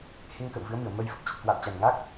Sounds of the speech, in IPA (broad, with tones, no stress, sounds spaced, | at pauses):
h e˧ ŋ k ə̰˧˨ w v ɨ˨˦ ə̯ m ɨ˧˩ ə̯ m ə˧ j f ə˦˥ p̚ t͡ɕ ə˨˩ t̚ k w a̰˧˨ w t͡ɕ a˨˩ n ŋ aː˦˥ k̚